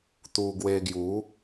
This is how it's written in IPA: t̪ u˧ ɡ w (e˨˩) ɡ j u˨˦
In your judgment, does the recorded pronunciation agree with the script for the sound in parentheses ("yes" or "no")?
no